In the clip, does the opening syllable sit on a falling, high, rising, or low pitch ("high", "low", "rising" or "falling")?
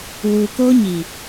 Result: low